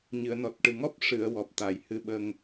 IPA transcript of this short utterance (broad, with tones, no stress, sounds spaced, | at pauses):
ɲ ɨ˨˩˨ ə̯ n ɔ˨˩ t̚ ʈ ɨ˨˩ ŋ ɔ˦˥ p̚ ʂ ɨ˨˩˨ ə̯ w ɔ˨˩ p̚ t̪ a˨˩˨ j h ɨ˧ ɓ ə˧ ŋ